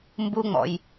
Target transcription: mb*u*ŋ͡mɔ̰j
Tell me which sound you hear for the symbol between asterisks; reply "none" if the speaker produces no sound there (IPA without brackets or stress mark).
u